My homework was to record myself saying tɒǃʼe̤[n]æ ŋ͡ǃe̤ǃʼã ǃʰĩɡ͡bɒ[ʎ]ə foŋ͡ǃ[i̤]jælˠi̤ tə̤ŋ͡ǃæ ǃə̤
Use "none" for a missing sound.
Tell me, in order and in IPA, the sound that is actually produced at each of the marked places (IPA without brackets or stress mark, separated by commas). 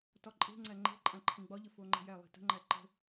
ŋ͡ǀ, ʎ, e̤